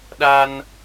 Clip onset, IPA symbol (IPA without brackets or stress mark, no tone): ɗ